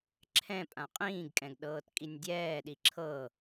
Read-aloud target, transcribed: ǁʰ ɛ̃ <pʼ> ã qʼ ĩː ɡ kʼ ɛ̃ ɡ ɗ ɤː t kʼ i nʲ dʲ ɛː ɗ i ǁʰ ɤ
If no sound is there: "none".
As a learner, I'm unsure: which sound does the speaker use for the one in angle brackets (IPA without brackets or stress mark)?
pʼ